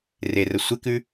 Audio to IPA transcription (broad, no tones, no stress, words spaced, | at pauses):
rerə sʷekʉ